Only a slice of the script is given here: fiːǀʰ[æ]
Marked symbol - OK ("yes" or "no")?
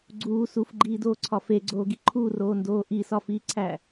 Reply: yes